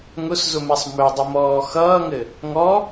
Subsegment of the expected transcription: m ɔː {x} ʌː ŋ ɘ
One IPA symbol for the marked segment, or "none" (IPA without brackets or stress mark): x